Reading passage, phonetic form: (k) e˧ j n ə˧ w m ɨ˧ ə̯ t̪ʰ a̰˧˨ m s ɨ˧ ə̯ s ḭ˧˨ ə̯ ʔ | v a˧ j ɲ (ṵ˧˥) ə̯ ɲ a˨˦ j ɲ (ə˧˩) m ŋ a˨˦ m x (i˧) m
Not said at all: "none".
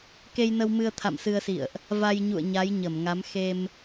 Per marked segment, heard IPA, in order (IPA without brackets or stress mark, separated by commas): k, ṵ˧˨, ə˧˩, e˧